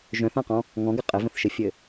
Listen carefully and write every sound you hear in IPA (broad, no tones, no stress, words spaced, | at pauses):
ʒœ̃θãqɔ̃ | ŋɔ̃ɡɘ qʼɘvə̃θʃɘfʲɘ